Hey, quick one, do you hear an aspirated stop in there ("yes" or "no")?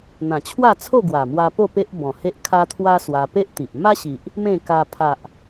yes